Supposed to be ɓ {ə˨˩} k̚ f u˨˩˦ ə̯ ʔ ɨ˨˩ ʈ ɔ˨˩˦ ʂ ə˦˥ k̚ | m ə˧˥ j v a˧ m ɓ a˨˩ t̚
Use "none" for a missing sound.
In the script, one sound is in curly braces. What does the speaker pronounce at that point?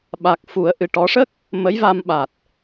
a˨˩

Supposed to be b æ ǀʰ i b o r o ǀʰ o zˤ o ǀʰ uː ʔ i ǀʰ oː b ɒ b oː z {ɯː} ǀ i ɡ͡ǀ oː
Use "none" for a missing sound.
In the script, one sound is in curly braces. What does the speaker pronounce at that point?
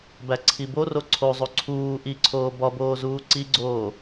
uː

